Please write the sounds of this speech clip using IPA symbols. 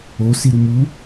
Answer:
o siɾumu

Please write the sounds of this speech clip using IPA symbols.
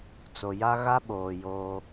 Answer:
t͡so˨ja˦ ɣa˦ɓoː˨ joː˦

